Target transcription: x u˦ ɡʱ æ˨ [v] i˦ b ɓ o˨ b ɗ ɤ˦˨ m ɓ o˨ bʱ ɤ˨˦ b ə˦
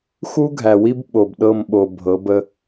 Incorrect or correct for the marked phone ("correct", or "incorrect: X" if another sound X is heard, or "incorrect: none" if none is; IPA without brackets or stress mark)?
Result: incorrect: w